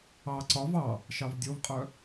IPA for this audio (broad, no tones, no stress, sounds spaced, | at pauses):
ɑ ǀ ɒ v ɑ | ʃ ɑ v dʲ o v qʼ œ